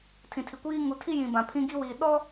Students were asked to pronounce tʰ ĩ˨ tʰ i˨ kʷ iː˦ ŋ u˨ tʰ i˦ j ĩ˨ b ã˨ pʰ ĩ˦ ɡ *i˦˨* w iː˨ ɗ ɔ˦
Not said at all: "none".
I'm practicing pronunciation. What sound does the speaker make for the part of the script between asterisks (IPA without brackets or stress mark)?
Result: i˦